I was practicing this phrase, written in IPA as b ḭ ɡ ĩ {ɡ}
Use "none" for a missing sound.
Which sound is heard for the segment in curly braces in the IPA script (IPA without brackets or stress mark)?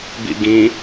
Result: none